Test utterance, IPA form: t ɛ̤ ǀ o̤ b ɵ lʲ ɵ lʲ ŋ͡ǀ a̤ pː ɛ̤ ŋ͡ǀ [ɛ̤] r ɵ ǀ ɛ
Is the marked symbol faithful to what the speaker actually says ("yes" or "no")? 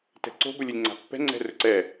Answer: yes